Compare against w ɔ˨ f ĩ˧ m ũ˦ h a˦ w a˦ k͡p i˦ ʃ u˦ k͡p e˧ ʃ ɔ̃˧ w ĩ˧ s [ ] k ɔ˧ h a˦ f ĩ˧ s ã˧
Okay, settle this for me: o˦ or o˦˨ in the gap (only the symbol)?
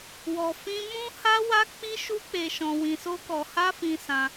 o˦